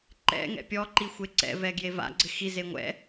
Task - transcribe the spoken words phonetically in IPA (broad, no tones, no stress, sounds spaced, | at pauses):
ǃ ɛ̰ ŋ ɛ̰ pʲ ɔ ǃ i xʷ e ǀ ɛ̰ v ɛ ɡ j e v a̰ ɡ͡ǀ ɪ x i z e ŋʷ ɛ̰